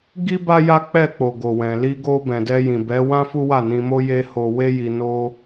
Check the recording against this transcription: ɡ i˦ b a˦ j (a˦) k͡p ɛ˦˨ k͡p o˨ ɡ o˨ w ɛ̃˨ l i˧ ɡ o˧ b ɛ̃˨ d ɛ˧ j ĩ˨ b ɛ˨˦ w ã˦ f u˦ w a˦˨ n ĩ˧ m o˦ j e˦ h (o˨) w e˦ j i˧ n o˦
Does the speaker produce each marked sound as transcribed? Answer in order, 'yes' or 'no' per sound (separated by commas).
yes, no